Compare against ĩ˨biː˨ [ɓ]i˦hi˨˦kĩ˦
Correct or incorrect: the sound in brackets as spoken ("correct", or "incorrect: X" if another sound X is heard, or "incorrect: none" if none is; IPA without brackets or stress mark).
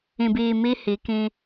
incorrect: m